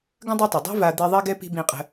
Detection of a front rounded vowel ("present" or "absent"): absent